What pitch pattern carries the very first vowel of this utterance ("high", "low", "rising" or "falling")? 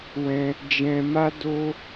high